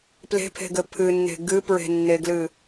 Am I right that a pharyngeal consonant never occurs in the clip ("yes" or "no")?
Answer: yes